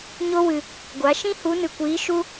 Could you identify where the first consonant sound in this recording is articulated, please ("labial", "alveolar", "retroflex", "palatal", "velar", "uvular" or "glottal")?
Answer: palatal